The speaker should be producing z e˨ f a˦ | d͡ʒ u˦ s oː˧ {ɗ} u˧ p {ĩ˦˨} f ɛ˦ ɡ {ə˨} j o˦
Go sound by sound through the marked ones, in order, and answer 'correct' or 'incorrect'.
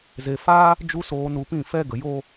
incorrect: n, correct, correct

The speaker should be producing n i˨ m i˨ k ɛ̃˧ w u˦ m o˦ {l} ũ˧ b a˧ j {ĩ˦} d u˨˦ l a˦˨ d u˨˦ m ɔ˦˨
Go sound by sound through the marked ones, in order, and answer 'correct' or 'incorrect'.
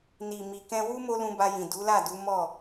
correct, incorrect: ĩ˨

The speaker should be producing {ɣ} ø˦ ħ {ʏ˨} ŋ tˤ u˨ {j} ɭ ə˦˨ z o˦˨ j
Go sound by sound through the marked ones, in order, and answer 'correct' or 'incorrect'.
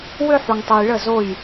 incorrect: w, incorrect: u˨, correct

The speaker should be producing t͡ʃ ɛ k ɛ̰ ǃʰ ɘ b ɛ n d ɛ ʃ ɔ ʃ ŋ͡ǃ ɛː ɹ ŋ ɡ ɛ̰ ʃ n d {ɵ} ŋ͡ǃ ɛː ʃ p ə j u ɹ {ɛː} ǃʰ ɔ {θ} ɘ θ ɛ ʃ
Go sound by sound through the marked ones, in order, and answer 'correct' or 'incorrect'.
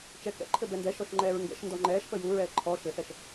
incorrect: ɔ, correct, incorrect: ʃ

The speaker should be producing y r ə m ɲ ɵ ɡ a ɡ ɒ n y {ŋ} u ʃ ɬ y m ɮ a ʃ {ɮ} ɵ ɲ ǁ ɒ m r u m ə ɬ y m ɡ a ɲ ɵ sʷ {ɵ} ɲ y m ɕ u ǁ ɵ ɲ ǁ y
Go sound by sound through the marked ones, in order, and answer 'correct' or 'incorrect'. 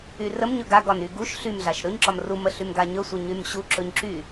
incorrect: ɡ, incorrect: ɾ, incorrect: ə

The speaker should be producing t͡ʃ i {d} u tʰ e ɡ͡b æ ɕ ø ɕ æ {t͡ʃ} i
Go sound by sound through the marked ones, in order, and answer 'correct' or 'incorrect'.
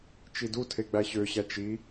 correct, correct

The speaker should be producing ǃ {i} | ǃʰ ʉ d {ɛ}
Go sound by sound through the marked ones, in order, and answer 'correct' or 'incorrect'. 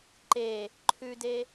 incorrect: e, incorrect: e

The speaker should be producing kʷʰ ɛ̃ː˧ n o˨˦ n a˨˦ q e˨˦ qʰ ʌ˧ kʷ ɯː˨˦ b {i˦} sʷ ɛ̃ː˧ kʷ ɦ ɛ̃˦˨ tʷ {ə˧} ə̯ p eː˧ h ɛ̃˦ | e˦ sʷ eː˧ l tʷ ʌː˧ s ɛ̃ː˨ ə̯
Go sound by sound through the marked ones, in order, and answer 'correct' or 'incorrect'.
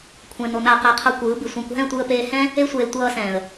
incorrect: i˨, incorrect: ɯ˧

